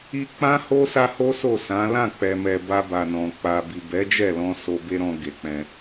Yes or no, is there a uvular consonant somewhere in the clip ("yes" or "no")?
no